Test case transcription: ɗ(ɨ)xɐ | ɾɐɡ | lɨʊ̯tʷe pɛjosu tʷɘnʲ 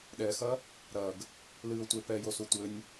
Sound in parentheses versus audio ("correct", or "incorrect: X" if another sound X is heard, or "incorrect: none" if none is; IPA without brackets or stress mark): incorrect: ɛ